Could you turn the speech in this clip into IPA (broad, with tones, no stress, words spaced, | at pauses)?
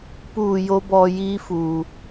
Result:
puː˧˩ jo˧˥bɔː˧jiː˧˥fuː˩